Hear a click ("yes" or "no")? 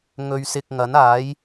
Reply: no